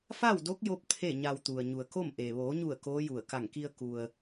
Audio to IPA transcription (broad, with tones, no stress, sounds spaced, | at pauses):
f a˥˨ w d o˧˥ k̚ j o˧˥ p̚ t̪ʰ e˥˨ ɲ a˧ w t̪ u˩ ə̯ ɲ u˩ ə̯ k o˥˨ m ʔ eː˩ ʋ oː˩˧ ɲ u˧˩ ə̯ k oː˧˥ j u˧˩ ə̯ k a˧˩ ŋ k i˧ ə̯ k u˩ ə̯